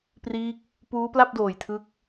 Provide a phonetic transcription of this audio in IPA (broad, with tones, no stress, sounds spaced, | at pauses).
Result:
p r iː˦˥ k̚ | p uː˦˥ p l a˥˩ p̚ d oː˨˩ j tʰ ɯ˦˥ k̚